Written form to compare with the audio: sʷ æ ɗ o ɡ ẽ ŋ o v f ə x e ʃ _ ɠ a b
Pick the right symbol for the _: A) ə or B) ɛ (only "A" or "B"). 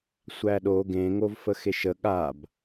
A